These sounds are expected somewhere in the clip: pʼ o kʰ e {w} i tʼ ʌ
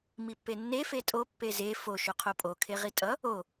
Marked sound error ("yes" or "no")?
yes